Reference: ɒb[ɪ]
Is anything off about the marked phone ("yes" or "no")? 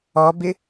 no